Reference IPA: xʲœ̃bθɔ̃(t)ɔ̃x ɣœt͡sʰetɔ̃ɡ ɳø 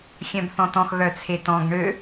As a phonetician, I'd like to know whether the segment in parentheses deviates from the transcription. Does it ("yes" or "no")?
no